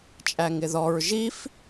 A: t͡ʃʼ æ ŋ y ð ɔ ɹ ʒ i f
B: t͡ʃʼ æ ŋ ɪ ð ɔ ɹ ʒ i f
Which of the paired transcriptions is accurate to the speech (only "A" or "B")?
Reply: B